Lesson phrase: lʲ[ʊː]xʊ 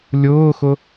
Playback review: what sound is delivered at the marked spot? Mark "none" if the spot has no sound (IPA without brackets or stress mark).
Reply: ʊː